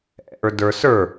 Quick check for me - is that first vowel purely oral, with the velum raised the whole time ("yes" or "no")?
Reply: yes